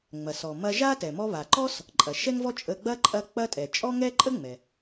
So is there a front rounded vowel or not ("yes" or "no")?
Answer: no